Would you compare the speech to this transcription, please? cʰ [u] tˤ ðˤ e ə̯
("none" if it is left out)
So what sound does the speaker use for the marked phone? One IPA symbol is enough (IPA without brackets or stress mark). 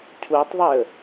u